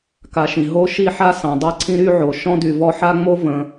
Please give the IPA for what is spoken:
k a˨ ʃ ĩ˩ ɦ o˥ ʃ i˥ ħ a˥ s ɑ̃˩ dˤ ɤ˦ ǀʰ ĩ˦ ɾ y˥ ʕ o˩ ʃ ɔ̃˥ d y˨ v ɔ˦ ħ a˥ ŋ͡m o˥ v ə̃˩

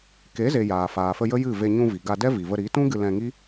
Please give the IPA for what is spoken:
k e˨˦ z e˨ j aː˨ f aː˨ f ə˧ j ə˦ j ɨ˦˨ v e˧ ɲ ũ˧ v i˨ ɡ a˧ d ɛ˦ v i˨ v ə˧ ɾ i˨˦ t ũ˦ ɡ ɨ˧ l ɛ̃˧ ŋ i˦

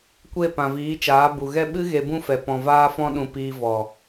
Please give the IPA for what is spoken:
kʷ e˦˨ p ã˨ v iː˨˦ t͡ʃ aː˨˦ b u˨ ɣ ɛ˦ ɓ ɨ˦ ɣ e˧ b ũ˦ f ɛ˨ p ɔ̃˨ v aː˧ f ɔ̃˧ ɗ ũ˨ p iː˧ v ɔ˨

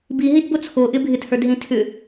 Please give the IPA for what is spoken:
b i ɦ i d b o t͡sʰ o ʔ ɪ bʱ ɪ t h ə˞ d ɦ ĩ tʰ ʏ

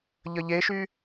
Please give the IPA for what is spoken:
ʎ ə ʎ e ʃ y

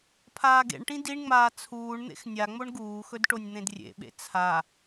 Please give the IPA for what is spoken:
pʰ aː ɡ ḛ ɳ ʈ ĩ d i ɳ ŋ͡m aː t͡sʰ uː ɳ n̪ ḛ x nʲ a ŋ͡m o ɳ ɡ uː x ɵ d ʈ o nʲ n̪ ẽ d rʲ ḛ ɓ ḛ t͡sʰ a

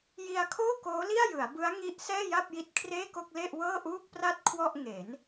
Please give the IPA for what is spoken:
j i˧ a̯ kʰ oː˥˩ k oː˦˥ l i˥˩ a̯ j ɯ˩˦ a̯ b ɯ˦˥ a̯ ŋ i˦˥ ʔ s ɛː˥˩ j a˥˩ p̚ j i˦˥ t̚ kʰ r eː˥˩ k o˥˩ k̚ l e˥˩ ʔ w ɤː˥˩ ʔ uː˥˩ k̚ p r a˥˩ t̚ kʰ w ɔ˥˩ ʔ ŋ e˩˦ n

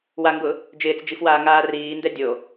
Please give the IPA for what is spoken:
w a ŋ ɡ ʊ | d͡ʒ ɪː t͡s d͡ʒ i f w aː ŋ aː r iː n d ɛ dʲ o

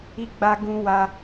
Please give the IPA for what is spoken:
i˦ ɡ͡b a˦ ɡ ũ˦ w a˦

